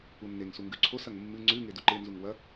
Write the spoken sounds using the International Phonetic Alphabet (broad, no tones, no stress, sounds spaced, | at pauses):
u nː e ŋ s u ŋ ɡ ʉ ǀʰ o s ɐ ŋ mː ɨ ŋ͡ǀ ʉ ŋ e d u ǃ e n z u ŋ w ɐ